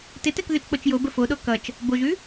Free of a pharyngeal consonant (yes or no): yes